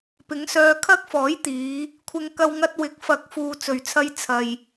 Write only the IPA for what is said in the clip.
pɪ˨˥ŋsœː˧ kʰɐ˥k̚fɔː˨˥jt̪iː˨˧ | kʷʰɪ˧ŋ kɐ˧wŋɐ˧t̚ wɪ˨˥k̚fɐ˨˥k̚ fuː˨t͡sɵ˨˩ɥt͡sʰɐ˧j t͡sʰɐ˨j

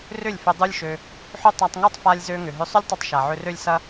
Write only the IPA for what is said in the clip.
rʏ˦˨lʲfʏ˧ dˤu˦lʲʃø˧ | ħʏ˦tˤa˧tˤŋu˦tˤfa˧lʲ zø˧ŋʏ˨ɦʏ˧ sˤʏ˦lʲtˤø˧tˤ ʃa˨ʕʏ˧rø˦lʲ sɐ˦

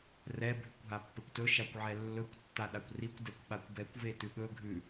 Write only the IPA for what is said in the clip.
rɛ bʱʉkʷɦapːekʷtɵ ʃakʷʕɛlːɵkʷ tːaɗakʷrikʷ dɛkʷɓakʷbɛkʷ vetʉɠɵ ɡʱʉ

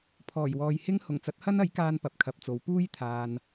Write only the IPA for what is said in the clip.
pʰɔː˨˩jwɔː˨jhɪ˥ŋ hʊ˨˩ŋt͡sɐ˨˥t̚hɐ˥nɐ˨˥j kaː˥npɐ˨p̚kʰɐ˨˥p̚t͡so˨˥w puː˥jt̪ʰaː˨n

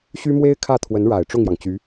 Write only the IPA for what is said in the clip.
ɕy˥mwe˥ɪ̯ kʰä˥˩t̪ʰwə˧˥nɻa˨˩ɪ̯ ʈ͡ʂʊ˥˩ŋjɑ˩ŋt͡ɕy˧˥

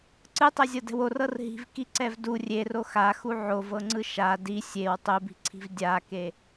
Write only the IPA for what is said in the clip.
ǀɯtˤɛzʲɤdɛ̤w orɤr ɦi̤vkiǀɛv du rʲero xaxu ʕovɤŋ͡ǀɯ ʃa di sʲew tˤubi̤ǀʰi̤v dʲake

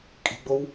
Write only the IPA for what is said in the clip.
kʼi̤ɡ͡bow

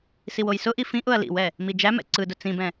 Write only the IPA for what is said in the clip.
siwojsʊʔi fĩʔʊɐ̯ lḭwɛ | mid͡ʒæmɛ̰ ǀɯdʊ t͡sĩbɛ̃

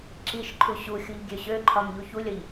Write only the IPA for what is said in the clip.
ǁiʃǃʰu ɕuxʲuʎ ɡʲøɕøǃʰɒm ʎuçulʲʌʎ

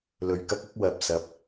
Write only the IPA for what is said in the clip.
lɵ˨ɥkɐ˥k̚ ɐ˥k̚ wɐ˨p̚sɐ˨˥p̚

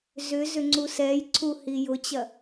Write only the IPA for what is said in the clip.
zʏ zʏŋ͡ǀusɛj ǀʰuhijʊt͡ɕɐ

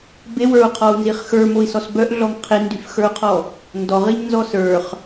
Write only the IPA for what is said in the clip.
bewə˞u̯qʰɔu̯nziχ xə˞moi̯sɔs bœʔɮɔŋ qʰindyfxə˞u̯qʰɔ | ndɔʁiɲnzɔ sə˞χ

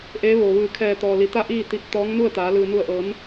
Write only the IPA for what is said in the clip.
ʔeː˧˥ʋo˩ʋɯː˧˩ kʰɛː˧˩t̪ɔː˩ li˩˧t̪a˥˨ʔiː˥˨t̪i˧˩p̚ t̪ɔː˧˥ŋnu˥˨ə̯t̪aː˩˧ lɯː˩nu˧˩ə̯ʔɤː˩˧n

